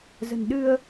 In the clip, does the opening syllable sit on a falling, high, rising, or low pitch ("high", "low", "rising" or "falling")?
low